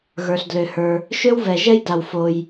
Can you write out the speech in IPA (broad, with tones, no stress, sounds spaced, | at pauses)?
ɣ ə˞˩ ɬ d l ø˩ h ə˞˩ | ʃ ø˥ w v ɛ˩ ʒ ɛ˥ j d a˩ w f o˩ j